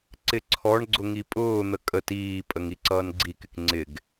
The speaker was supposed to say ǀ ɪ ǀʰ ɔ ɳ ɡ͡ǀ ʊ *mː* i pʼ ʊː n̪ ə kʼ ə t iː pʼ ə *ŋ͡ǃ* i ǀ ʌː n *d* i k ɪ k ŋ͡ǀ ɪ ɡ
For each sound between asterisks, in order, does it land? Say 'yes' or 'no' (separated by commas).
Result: no, no, no